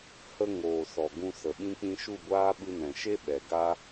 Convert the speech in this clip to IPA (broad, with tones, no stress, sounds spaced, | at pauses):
h ə˧ ŋ oː˨ s ɔ˨ ɡ ũ˧ s ə˨ ɓ ĩ˧ k͡p ĩ˧ ʃ u˦˨ ɡʷ aː˦ ɓ ɨ˧ n ɛ̃˨ ʃ e˦ ɓ ɛ˨ ɡ a˦